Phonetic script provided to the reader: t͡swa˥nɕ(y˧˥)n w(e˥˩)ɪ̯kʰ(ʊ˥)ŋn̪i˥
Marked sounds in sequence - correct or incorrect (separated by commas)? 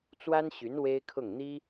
correct, incorrect, incorrect